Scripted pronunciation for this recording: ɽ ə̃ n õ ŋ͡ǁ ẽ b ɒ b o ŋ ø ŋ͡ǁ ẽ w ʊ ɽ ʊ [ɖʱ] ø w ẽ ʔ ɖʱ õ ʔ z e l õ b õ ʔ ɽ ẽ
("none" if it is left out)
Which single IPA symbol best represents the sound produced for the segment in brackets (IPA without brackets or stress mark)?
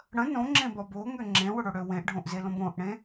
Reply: ɽ